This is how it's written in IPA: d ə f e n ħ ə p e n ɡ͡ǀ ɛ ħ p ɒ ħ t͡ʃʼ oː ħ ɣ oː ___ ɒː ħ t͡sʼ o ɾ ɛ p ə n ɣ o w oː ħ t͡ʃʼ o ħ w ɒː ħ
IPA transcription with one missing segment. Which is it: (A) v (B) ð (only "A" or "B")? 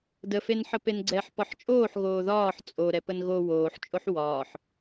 B